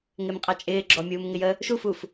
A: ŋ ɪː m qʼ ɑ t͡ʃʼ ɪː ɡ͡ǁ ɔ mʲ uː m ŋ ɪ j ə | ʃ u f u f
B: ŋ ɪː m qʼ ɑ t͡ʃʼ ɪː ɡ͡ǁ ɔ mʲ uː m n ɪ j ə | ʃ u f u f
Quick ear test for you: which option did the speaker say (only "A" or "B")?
A